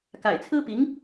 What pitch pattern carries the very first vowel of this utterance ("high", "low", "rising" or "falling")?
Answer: low